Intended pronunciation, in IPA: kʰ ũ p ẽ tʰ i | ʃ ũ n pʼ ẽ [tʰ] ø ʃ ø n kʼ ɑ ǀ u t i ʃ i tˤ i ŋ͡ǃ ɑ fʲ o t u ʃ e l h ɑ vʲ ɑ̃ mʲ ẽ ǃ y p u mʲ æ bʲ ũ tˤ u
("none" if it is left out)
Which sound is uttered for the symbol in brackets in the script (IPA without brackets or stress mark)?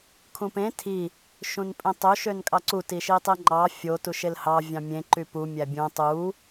tˤ